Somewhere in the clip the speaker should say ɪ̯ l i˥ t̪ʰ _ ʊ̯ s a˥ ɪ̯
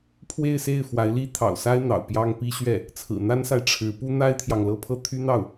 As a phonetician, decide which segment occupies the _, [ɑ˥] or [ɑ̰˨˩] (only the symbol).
ɑ̰˨˩